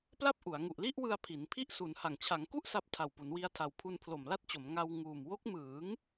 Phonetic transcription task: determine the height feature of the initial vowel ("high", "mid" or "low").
low